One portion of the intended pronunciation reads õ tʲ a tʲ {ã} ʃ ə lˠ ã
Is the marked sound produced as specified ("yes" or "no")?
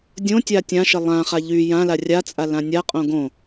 yes